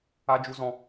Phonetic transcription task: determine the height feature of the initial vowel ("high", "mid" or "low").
low